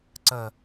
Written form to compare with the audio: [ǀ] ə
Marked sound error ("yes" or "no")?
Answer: no